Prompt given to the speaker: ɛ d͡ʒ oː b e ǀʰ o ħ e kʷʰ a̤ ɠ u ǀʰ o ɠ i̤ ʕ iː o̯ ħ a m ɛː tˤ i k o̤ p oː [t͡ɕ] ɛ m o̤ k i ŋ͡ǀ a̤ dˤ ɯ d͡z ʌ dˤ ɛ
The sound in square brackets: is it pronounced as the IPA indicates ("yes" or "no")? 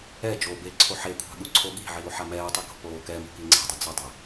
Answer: no